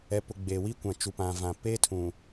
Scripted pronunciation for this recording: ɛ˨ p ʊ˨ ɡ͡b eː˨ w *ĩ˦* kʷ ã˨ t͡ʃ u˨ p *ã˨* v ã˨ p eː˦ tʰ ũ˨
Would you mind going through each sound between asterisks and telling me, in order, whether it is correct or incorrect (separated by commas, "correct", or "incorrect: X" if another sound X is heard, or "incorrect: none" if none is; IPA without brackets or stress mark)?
incorrect: i˦, correct